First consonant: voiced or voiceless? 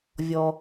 voiced